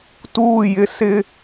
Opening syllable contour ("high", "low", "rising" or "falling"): falling